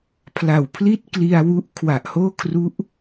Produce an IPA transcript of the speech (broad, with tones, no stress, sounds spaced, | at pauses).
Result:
pʰ l a˨˩ w pʰ l i˥˩ t̚ k l i˧ a̯ w u˦˥ ʔ kʰ w a˨˩ ʔ h oː˥˩ kʰ r u˦˥ ʔ